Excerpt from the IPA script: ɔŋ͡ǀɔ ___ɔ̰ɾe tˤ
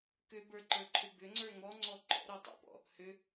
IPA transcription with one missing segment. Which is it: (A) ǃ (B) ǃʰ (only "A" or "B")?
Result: A